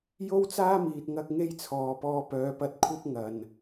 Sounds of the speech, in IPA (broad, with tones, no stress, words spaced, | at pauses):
jo˥wt͡saː˥miː˨t̚ ŋɐ˥k̚ŋe˥jt͡sʰɔː˨ pɔː˧pœː˨˧pɐ˧t̚kʷʰɐ˥p̚ ŋɐ˨n